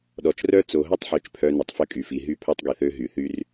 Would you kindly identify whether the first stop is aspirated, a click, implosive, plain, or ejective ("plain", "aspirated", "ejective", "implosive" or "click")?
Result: implosive